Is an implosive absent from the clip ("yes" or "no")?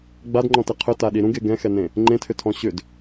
no